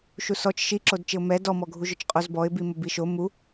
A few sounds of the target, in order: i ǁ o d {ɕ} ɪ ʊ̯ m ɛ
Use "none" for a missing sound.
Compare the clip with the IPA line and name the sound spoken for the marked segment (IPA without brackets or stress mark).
t͡ʃ